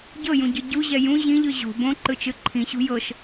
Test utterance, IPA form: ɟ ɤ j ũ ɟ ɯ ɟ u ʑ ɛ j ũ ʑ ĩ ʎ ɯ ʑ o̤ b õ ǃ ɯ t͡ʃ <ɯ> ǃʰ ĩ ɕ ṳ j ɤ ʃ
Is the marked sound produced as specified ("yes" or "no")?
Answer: yes